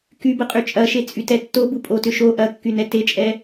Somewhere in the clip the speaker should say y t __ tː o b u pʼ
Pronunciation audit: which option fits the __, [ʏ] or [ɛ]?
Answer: ɛ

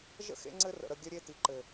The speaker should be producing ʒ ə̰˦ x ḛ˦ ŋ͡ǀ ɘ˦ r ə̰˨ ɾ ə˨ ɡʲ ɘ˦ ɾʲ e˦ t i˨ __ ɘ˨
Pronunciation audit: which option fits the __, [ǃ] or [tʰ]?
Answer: ǃ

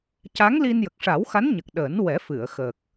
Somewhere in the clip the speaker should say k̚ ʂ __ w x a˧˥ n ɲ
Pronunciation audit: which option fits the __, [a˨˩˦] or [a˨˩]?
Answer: a˨˩˦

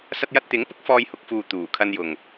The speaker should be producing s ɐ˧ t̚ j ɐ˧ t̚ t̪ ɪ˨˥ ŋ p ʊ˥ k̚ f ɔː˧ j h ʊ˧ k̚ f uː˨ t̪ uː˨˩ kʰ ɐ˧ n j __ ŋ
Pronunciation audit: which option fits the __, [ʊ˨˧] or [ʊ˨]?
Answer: ʊ˨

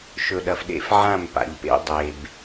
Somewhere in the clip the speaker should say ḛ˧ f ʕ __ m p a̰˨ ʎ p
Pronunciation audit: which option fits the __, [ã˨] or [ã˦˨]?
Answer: ã˦˨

